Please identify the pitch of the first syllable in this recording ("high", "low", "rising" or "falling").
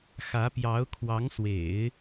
rising